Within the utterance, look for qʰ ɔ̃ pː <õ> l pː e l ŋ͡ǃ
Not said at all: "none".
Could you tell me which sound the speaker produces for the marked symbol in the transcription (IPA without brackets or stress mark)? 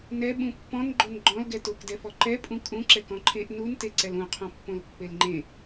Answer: õ